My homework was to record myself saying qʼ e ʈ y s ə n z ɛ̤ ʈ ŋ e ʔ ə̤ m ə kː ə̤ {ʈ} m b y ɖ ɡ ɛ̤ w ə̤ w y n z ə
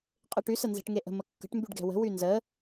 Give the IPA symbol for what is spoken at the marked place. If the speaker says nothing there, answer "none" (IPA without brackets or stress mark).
ʈ